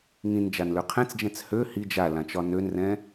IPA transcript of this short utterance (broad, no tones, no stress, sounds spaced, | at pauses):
ŋ ĩ n d͡ʒ a n l ø qʰ ɛ̃ t͡s d͡ʒ ɛ̃ t͡s h ø h i d͡ʒ a l ã t͡ʃ ɒ n ø n r ɛ̃